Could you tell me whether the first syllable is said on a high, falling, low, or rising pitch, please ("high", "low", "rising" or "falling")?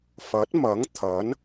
rising